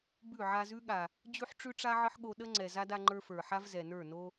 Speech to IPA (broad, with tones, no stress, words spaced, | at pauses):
bʉ˦˨ ʕa˧zʉ˦ɠa˨ | d͡ʑʉ˦ħʈ͡ʂʉ˦ʈ͡ʂa˦ ʕə˦ħɠo˧ɗə˦ ŋ͡ǀɛ˨za˦d a˦ŋ͡ǃə˞˦fə˞˨ ħa˦vzɛ˨nə˞˦˨ no˦